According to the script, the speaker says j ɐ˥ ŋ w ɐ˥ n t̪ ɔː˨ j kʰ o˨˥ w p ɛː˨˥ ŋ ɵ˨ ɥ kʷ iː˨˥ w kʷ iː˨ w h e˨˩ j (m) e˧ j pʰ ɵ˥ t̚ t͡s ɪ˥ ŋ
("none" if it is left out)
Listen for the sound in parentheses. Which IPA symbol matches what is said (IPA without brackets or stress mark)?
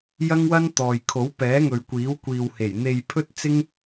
n̪